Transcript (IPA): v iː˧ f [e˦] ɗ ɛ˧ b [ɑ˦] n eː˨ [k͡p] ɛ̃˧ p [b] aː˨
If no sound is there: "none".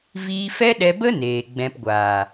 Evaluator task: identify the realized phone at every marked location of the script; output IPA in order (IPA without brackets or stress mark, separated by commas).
ɛ˦, ə˦, ɡ͡b, ɡʷ